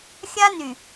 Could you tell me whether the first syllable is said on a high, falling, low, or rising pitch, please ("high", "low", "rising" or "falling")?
high